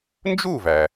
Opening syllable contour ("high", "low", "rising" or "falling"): falling